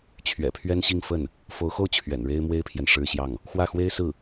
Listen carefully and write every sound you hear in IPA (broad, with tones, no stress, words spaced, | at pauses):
t͡ɕʰɥɛ̰˨˩pʰɥɛ˥nɕi˥˧ŋ fə˥˩n | fo˧˥ʊ̯xo˥˩ʊ̯ t͡ɕʰɥɛ̰˨˩nɻe˥ɪ̯mwe˥ɪ̯pʰjɛ˨n ʂɻ̩˥˧ɕjɑ˥˩ŋ | xwä˥˩xwe˥ɪ̯sɹ̩˥˩